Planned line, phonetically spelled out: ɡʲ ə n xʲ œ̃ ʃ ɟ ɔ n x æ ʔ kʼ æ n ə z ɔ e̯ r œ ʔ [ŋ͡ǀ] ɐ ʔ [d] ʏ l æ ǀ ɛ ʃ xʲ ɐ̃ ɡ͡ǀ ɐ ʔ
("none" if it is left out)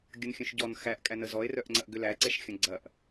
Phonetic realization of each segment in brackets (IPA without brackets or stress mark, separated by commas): ŋ͡ǀ, ɡ